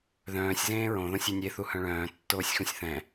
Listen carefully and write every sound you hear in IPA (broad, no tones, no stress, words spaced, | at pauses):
ðœ̃ːsʲ zẽːɹõ ðõsʲenʲe θuhœ̃ɭœ̃ː tːoːsʲxũsʲθɛ̃